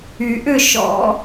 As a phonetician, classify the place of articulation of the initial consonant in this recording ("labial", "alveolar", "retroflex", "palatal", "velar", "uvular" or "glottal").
glottal